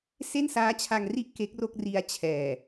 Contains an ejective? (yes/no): no